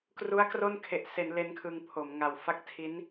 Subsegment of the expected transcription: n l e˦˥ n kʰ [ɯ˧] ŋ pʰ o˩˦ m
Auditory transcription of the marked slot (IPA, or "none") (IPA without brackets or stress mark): ɯ˧